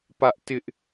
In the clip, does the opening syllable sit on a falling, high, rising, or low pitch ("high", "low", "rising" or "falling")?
high